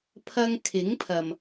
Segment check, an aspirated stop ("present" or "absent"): present